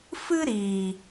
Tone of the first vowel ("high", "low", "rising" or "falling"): high